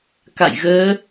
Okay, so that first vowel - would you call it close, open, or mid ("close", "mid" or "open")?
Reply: open